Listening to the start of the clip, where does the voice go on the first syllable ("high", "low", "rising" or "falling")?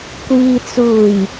low